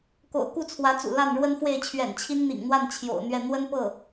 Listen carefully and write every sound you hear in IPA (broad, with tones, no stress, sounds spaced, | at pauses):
k o̰˨˩ ʊ̯ k u˥˩ t͡sʰ w ä˧˥ t͡s ṵ˨˩ l a˥˩ n ɻ w ə˥ n f w e˥˩ ɪ̯ t͡ɕʰ ɥ ɛ̰˨˩ n t͡ɕʰ i˥ n n̪ ḭ˨˩ ŋ n̪ w a˥˩ n t͡ɕʰ j o̰˨˩ ʊ̯ n̪ ɥ ɛ˥˩ n̪ w ə˥ n p ɤ˥˩